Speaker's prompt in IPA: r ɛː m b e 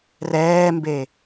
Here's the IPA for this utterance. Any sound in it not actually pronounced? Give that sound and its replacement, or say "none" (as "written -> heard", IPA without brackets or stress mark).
none